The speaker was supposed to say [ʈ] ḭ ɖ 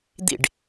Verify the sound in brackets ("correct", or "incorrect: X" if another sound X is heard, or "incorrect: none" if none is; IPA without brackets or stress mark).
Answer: incorrect: d̪